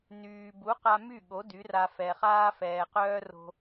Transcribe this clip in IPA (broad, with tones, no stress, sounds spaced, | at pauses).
n yː˩ b u˩˥ q a˧ m y˥˩ ɠ o˩˥ d y˩˥ r a˧ f ɛ˩ χ aː˥ f ɛː˩ q œː˥ r o̤˧